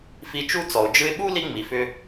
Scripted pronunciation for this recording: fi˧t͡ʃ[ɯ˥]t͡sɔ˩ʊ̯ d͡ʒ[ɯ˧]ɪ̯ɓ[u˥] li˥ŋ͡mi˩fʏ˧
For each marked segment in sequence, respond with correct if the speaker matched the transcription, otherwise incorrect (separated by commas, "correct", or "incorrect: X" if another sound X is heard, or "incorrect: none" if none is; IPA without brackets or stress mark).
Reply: incorrect: u˥, correct, correct